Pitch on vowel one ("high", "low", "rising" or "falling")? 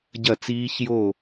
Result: falling